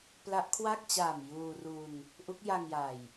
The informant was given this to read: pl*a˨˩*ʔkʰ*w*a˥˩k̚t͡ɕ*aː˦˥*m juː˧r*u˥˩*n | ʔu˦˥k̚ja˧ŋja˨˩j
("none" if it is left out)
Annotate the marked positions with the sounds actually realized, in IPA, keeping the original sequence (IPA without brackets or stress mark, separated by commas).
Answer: a˦˥, w, aː˨˩, u˧